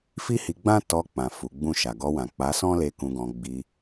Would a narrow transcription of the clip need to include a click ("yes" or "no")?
no